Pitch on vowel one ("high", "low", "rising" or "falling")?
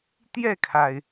falling